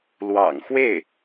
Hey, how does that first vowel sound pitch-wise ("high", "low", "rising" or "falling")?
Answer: low